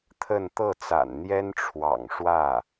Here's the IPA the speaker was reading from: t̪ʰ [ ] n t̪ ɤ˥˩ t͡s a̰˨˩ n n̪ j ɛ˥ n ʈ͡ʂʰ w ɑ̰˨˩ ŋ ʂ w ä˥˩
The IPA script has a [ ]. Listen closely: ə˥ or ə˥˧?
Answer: ə˥˧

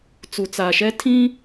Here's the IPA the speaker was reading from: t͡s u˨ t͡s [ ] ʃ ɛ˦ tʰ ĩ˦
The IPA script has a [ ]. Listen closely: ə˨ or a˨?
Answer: a˨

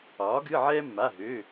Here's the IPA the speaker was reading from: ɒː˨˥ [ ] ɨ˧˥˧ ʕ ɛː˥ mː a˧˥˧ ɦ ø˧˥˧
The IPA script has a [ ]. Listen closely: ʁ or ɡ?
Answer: ɡ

